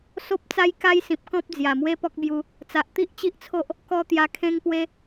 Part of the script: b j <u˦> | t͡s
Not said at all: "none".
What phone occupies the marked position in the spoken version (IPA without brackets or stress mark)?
u˧